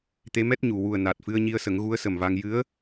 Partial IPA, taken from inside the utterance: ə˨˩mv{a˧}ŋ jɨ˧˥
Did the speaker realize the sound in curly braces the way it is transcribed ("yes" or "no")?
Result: yes